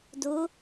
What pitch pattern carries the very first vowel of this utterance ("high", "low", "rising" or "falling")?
rising